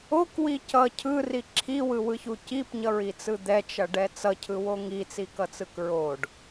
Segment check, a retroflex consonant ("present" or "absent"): present